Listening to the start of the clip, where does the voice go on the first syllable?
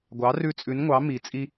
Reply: rising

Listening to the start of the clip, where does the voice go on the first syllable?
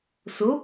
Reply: rising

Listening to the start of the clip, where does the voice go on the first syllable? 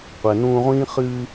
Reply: low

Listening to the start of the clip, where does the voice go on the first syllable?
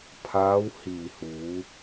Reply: rising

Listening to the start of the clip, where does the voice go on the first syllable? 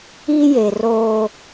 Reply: high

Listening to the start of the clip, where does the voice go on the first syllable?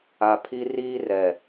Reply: low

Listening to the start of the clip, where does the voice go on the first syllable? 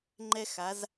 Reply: high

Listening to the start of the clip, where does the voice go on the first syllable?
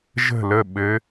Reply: falling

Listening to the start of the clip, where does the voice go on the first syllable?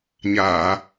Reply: low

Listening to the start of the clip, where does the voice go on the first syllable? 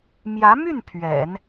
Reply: rising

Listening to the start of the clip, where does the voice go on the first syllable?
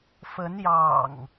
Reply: rising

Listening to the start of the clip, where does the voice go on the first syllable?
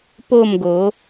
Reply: falling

